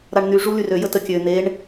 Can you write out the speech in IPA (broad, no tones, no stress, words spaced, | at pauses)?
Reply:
ɾaɳn̪y ʐulyrø jətəkʲø n̪eɳ